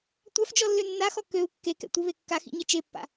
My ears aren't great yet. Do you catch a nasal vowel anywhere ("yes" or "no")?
no